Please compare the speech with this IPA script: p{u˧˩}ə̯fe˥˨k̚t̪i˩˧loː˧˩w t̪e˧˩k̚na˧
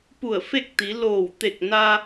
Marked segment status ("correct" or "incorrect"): correct